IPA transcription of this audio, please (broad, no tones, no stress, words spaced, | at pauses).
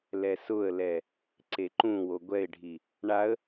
lɛsʊə̯lɛ | ǀeǃũwo ɡʷɛɪ̯ɖʱi | ɳaə̯